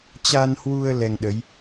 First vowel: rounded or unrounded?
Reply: unrounded